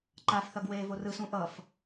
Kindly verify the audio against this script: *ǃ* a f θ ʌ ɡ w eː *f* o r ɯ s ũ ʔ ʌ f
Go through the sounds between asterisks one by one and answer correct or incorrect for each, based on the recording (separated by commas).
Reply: correct, incorrect